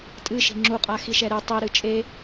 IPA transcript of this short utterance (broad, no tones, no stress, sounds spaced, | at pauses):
tʼ ɨ ʃ i̤ ŋ͡ǁ u qʼ a x i ʃ ɛ ɾ ɨ tˤ i ɾ ɨ t͡ʃʼ e